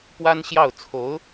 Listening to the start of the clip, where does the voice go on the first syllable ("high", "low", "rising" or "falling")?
high